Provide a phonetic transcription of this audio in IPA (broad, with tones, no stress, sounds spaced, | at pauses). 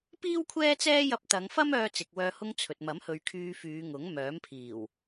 p iː˥ w kʷʰ ɛː˥ t͡s ɛː˥ j ɐ˧ p̚ t̪ ɐ˨˧ ŋ f ɐ˥ m œː˧ t͡s ɪ˨ k̚ w œː˧ h ʊ˧ ŋ t͡sʰ ɵ˨ t̚ m ɐ˨˥ m h ɵ˨˧ ɥ kʰ yː˧ f yː˨˧ ŋ ʊ˨˥ ŋ m œː˨˥ m pʰ iː˨˩ w